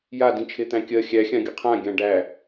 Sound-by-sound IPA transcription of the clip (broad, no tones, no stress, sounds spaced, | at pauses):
j a d ĩ t͡ʃʰ e t̪ æ̃ kʲ ɜ xʲ æ xʲ ã ɡʲ ə qʰ ã ɡʲ ã ɖ æ